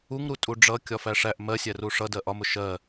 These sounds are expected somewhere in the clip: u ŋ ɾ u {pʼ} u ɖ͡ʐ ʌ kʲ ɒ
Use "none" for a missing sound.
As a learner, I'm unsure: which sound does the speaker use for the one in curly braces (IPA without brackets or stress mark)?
tʼ